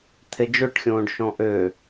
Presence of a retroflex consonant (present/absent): present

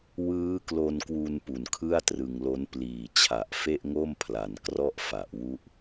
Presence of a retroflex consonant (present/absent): absent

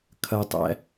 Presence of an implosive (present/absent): absent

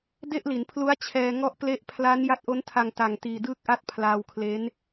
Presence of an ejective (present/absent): absent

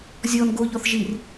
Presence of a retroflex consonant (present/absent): absent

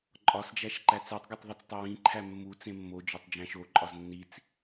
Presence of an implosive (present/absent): absent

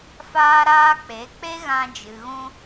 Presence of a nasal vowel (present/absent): present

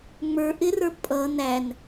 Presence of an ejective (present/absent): present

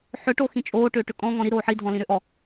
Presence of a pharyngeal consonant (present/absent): present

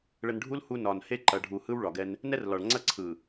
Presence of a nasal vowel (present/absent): absent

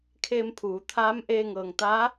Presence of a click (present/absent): absent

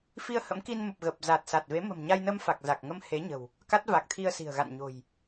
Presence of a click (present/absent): absent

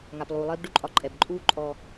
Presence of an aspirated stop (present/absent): absent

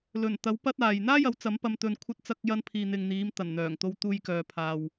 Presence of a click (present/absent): absent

